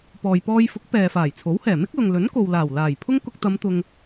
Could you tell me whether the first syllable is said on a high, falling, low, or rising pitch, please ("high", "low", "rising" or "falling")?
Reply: low